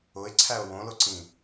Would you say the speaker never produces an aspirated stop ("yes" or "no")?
no